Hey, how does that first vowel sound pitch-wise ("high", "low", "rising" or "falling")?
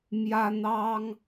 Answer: high